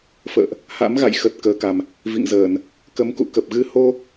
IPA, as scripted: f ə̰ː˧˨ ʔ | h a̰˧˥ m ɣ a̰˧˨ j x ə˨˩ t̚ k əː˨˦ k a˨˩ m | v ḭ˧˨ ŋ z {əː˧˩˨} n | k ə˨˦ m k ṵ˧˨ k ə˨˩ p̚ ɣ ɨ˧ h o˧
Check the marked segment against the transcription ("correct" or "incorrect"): correct